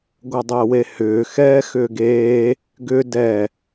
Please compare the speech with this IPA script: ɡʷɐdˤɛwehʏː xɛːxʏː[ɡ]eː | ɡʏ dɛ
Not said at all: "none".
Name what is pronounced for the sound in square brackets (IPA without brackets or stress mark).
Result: ɡ